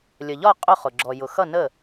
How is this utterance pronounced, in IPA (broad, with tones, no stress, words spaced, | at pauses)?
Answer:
lʲə˩ʎɒ˥˩ qʼʊ˥˩ χʊ˩ ɡ͡ǁɔ˩jʊ˩ xʌ˥˩ nə˥˩